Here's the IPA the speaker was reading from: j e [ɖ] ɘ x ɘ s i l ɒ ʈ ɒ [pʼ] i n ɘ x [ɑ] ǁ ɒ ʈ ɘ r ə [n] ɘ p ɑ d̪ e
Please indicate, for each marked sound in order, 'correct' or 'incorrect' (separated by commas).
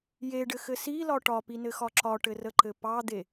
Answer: correct, incorrect, incorrect, incorrect